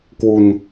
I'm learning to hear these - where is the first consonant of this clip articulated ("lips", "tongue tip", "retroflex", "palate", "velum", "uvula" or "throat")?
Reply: velum